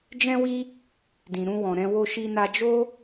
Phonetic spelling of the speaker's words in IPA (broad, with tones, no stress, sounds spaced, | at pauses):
d͡ʒ ɛ̃˦ w i˦ | d ĩ˨ ɾ ũ˧ w ɔ̃˨ ɾ ɛ̃˧ w o˦ ʃ i˦ n a˦ d͡ʒ o˦